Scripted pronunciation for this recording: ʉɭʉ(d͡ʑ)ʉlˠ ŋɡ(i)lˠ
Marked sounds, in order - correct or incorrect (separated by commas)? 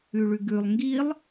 incorrect, correct